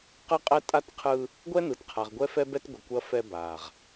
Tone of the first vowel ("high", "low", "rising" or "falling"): high